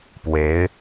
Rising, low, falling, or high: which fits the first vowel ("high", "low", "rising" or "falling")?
rising